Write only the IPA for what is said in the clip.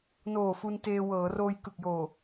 n oː˨˩ f u˧ n t eː˧ w ɤː˩˦ r oː˧ j k ɯ˨˩ k̚ j oː˨˩

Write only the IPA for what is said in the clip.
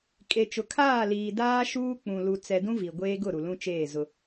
kʼ e˨ t͡ʃ ʊ˨ kʰ aː˦˨ l iː˨ d aː˦ ʃ uː˦ k͡p ũ˨ l u˨ t͡s ɛ˨ d ũ˦ v i˨ ɡʷ eː˦ ɡ ʊ˦˨ ɾ u˨ l ũ˦ t͡ʃ eː˦˨ z ʊ˦

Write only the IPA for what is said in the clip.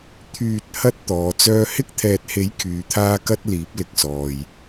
t̪ʰ yː˨ t̚ h ɐ˥ t̚ t̪ ɔː˨˧ t͡s œː˥ h ɪ˥ k̚ t̪ʰ ɛː˨ t̚ h e˨˥ j kʰ yː˨˧ t̪ʰ aː˥ k ɐ˥ t̚ l iː˨˥ p̚ l ɪ˧ k̚ s ɔː˨ j

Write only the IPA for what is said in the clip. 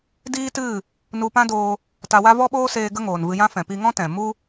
d iː˦ t ɨ˦˨ | n u˧ p ã˦ d oː˧ | t a˧ w a˦ v ɔ˦ ɓ oː˦ s eː˧ ɡ ə˦ ŋ oː˨ n v ɨ˧ j ã˦ f ɛ̃˨ p i˧ ŋ ɔ̃˦ t ɛ̃˨ m u˦

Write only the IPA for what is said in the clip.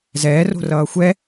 z ɛː r o̤ r ʌː xʷ ɛ

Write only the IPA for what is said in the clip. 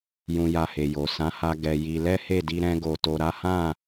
j ũ˧ j a˧ h e˨ j o˨ s ã˨˦ h a˧ ɡ ɛ˧ j i˧ l ɛ˦ h e˦˨ d i˧ ɾ ɛ̃˧ ɡ o˨ t o˨ ɾ a˨˦ h ã˦˨

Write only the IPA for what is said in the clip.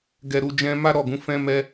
ɡ ɛ˨ ɾ u˨ d͡ʒ ɛ̃˧ m a˦ ɾ ɔ˦˨ ɡ ũ˨˦ f ɛ̃˦ m ɛ˦

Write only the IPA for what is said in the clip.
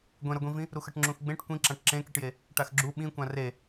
ɡʷ ẽ ɾ ʌ ɡʷ ĩ v ĩ | ɾ u x ʌ ʈ ŋ͡ǁ ũ x ɡ͡b ẽ ʈ kʷ ĩ ǁ ã ʈ ǁ ẽ k i ʈ j e | ʈ a x ɡ͡ǁ u ɓ ĩ kʷ ã r e

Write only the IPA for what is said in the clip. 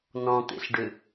n ɔ̃ t̪ ḛ ɬ ɖ ʏ

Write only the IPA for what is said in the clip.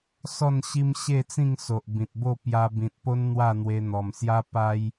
s ɔ˥˧ n ɕ i˦ m ɕ e˥˧ t͡s ĩ˥˧ ŋ s o˨ ʔ b ĩ˨ t̚ b o˥˧ p j a˧ b ĩ˨ t̚ p o˦ n n̪ w a˥˧ n̪ w e˧ n̪ ɔ˨˩ m s j a˦ p a˦ j

